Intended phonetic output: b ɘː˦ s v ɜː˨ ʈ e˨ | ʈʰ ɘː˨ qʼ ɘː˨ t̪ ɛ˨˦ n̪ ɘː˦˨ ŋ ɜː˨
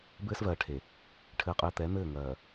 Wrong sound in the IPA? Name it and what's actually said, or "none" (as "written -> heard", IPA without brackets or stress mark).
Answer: ʈ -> ʈʰ